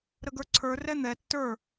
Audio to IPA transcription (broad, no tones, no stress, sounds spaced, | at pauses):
ɾ ə ɡ ə˞ ǀʰ ə˞ r ɛ n̪ ɛ tː ə˞